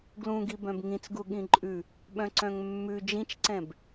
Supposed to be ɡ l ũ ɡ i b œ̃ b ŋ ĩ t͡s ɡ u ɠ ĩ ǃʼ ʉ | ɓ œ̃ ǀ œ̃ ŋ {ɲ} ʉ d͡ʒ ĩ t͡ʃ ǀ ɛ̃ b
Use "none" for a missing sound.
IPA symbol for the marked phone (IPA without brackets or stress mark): mː